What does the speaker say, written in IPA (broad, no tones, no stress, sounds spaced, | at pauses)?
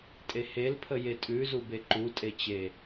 tʼ e h e l pʰ ə j e tʼ ʉ z u b e ǃ u tʼ e t͡ɕ e